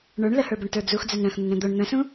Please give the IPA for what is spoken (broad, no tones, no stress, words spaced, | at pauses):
ɳə˞ɳ ləhə˞bʊɳtə˞ d͡zux d͡zœnɾœ̃xn̪ən ɾœ̃d̪oɳ n̪ə̃sũ